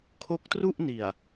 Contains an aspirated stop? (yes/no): yes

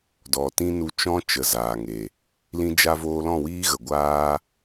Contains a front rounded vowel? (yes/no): no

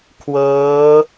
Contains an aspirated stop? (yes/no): yes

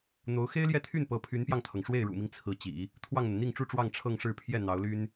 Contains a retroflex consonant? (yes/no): yes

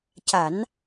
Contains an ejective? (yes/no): no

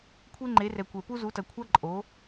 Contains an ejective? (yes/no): yes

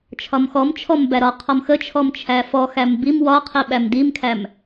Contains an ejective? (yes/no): no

